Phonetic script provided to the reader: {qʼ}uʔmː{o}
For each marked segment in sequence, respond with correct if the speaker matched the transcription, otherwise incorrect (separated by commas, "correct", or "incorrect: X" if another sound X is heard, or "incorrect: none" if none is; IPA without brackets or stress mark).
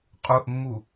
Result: correct, incorrect: u